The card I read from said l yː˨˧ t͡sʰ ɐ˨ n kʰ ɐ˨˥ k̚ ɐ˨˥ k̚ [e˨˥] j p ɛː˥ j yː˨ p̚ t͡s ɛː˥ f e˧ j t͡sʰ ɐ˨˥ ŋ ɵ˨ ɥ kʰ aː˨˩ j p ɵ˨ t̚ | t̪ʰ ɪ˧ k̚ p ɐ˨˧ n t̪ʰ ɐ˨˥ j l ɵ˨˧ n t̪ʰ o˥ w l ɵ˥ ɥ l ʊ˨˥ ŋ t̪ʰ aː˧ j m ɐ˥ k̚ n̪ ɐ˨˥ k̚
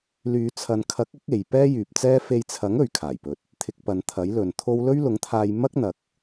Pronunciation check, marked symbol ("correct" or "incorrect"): incorrect